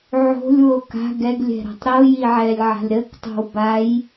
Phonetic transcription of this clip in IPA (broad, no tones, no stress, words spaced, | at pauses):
ʕo̤lʲwo ka̤ ɡɛɡlʲɛ̤ɾa̤tˤ ɾojiʕɛlʲʕa̤lʲ ɾəktˤo̤w baj